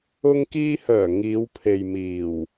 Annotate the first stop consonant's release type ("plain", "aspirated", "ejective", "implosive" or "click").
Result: plain